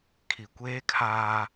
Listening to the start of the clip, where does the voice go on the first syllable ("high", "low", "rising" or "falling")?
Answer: low